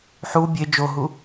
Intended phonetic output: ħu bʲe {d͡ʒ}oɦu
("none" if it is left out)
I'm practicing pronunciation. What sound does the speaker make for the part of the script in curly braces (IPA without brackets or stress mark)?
d͡ʒ